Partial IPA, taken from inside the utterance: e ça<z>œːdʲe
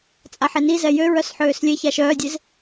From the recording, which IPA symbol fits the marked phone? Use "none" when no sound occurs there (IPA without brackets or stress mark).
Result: ʃ